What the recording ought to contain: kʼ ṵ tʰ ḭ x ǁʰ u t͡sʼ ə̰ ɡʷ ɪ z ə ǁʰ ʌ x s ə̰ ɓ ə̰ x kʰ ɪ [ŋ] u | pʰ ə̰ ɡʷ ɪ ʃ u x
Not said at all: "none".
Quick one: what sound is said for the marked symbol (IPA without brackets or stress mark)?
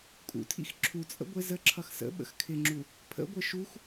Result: ŋ͡ǁ